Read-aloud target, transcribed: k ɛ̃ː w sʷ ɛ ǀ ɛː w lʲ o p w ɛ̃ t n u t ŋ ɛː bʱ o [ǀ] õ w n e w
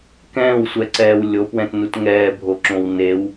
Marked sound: incorrect: ǁ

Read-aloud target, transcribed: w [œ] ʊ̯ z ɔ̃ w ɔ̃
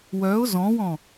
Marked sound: correct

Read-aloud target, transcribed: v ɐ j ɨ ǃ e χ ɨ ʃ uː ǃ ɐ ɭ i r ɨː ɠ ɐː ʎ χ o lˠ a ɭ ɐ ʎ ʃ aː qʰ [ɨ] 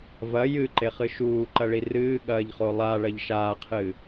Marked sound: correct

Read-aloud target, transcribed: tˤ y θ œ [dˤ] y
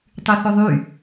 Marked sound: incorrect: ðˤ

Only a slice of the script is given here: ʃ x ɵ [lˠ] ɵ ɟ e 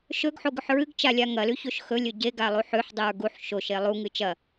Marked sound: incorrect: lʲ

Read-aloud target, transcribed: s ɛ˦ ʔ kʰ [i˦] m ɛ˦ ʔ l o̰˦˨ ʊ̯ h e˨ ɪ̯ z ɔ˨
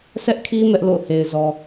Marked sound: correct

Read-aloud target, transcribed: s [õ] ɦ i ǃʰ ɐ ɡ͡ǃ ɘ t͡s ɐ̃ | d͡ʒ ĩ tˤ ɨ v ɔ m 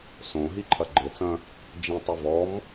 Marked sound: correct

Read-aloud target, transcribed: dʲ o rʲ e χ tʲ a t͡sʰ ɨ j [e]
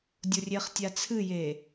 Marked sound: correct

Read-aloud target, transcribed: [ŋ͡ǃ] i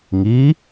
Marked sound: incorrect: ŋ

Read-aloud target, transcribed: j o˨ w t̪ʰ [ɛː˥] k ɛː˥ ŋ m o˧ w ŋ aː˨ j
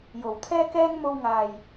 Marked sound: correct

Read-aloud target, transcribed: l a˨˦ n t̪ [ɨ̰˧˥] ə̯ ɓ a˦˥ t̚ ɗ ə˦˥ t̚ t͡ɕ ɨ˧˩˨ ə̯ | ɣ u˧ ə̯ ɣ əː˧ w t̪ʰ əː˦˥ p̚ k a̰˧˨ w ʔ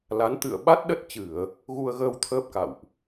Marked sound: incorrect: ɨ̰˧˨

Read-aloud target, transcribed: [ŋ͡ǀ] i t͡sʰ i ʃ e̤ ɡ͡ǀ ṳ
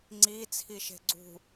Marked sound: correct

